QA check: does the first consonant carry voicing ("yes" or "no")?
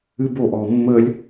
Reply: yes